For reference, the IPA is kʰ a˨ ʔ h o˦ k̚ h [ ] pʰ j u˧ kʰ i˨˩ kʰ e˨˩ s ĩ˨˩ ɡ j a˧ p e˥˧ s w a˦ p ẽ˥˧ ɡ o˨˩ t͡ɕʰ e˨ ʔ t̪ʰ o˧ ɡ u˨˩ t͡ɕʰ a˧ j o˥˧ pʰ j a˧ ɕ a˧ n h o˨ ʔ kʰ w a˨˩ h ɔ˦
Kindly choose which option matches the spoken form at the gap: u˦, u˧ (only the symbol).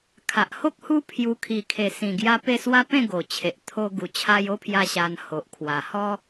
u˦